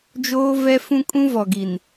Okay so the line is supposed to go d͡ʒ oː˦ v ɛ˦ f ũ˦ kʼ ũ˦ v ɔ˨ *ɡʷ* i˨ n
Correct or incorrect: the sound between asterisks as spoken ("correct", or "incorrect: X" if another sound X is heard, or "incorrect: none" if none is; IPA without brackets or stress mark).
incorrect: ɡ